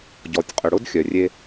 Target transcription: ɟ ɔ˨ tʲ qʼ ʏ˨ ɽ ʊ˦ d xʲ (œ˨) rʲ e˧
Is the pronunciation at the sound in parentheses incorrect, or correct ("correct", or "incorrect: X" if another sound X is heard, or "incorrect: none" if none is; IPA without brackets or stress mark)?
correct